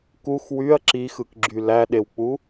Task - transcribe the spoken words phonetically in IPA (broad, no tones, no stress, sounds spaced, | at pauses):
k u x w y ɐ̯ ǁ i x ɯ k ɡ͡ǁ y l æ ɗ e w k͡p u